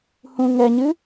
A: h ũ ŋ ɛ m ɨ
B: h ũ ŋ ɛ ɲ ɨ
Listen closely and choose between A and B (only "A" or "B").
B